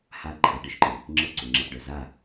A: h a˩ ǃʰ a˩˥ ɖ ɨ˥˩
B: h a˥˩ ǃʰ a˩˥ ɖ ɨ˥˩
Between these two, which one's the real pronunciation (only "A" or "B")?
B